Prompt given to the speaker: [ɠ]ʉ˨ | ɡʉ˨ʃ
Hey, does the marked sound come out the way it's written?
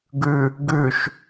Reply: no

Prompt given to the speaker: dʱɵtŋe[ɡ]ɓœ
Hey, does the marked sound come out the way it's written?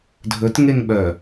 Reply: no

